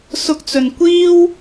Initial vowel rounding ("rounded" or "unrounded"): rounded